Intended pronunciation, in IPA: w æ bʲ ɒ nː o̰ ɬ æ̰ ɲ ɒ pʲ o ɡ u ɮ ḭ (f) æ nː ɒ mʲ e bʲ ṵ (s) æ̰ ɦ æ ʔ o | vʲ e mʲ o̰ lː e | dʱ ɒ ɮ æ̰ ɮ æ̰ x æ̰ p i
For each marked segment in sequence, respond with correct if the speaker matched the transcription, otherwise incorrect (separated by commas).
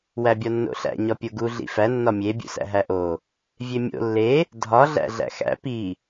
correct, correct